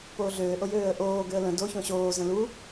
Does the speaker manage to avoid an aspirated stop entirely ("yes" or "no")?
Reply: yes